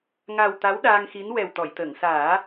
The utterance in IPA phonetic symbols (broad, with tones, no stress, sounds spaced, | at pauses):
ŋ a˨˩ w t̪ a˧˥ w ɗ aː˧ ŋ x i˧˥ n w ɛ˨˩ w t̪ ɔ˨˩˨ j t̪ əː˨˩˨ ŋ s aː˨˩˦